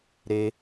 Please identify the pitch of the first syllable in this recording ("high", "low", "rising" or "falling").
high